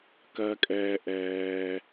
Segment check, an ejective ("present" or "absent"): present